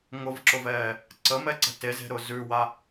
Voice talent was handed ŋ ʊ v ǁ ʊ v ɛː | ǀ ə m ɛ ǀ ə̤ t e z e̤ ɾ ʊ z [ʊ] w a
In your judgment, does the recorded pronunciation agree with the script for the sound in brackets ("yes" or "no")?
no